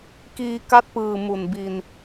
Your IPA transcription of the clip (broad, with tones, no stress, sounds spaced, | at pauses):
k iː˧ k a˦˥ t̚ p ɯː˨˩ m u˨˩ n b i˧ n